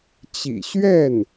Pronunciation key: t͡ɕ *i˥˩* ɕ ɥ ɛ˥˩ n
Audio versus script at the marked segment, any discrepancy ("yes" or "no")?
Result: yes